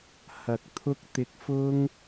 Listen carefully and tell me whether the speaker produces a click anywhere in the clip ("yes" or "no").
no